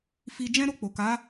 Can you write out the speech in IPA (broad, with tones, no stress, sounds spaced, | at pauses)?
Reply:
f i˧ d͡ʒ ɛ̃˦ ɾ o˧ k͡p o˨ k a˨˦